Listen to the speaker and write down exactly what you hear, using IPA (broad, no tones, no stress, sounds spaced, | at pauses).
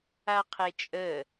a qʰ e t͡ʃʼ ə